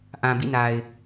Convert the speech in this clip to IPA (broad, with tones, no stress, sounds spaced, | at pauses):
ʔ ã˨ b ḭ˦˨ n a˨ ɪ̯